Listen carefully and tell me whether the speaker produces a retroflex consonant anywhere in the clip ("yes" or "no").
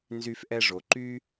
yes